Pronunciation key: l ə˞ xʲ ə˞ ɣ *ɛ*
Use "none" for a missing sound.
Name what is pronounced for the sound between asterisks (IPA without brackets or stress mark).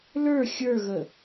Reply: ə